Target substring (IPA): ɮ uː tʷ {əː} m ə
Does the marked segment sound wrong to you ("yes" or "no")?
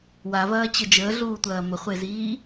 yes